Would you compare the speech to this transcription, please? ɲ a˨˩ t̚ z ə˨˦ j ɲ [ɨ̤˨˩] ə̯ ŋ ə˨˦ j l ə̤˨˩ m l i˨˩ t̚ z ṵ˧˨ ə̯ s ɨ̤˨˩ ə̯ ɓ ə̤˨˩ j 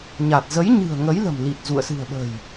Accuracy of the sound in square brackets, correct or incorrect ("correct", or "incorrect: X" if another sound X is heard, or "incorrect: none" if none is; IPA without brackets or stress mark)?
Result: correct